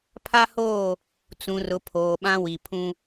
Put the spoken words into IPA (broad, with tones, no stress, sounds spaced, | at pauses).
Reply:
pʰ a˦ h oː˦˨ | t͡s ũ˨ r ʊ˨ pʰ oː˨ ɓ ã˦ w i˨ pʰ ũ˦